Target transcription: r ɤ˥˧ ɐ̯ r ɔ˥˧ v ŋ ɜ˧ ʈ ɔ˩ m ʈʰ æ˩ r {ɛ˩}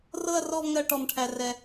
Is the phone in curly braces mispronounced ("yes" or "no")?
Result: no